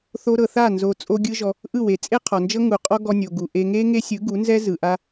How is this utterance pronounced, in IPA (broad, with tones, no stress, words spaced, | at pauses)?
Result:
θo˧ɾɤ˨θa˦˨ nzo˧t͡sʼo˦ɡʲɯ˦ʒɔ˧ | ʔɯ˦˨we˨ t͡sʼe˦qʰɔ˨nd͡ʒɤ˦ ŋu˨qʼɔ˦ ɡɔ˧nʲo˨ ɡu˨ʔe˧ ŋe˦ ŋe˦sʲɯ˨˦ɡu˨˦ nzɛ˦zɯ˨ʔa˧